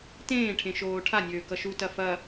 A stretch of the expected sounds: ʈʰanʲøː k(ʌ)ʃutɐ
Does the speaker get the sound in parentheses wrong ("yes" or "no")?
no